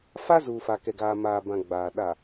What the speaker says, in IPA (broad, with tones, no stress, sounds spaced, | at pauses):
f a˦ z uː˨ f a˨ k ɛ˨ ɡ aː˨ m aː˨ b ã˨ ɡ͡b aː˨ ɗ a˨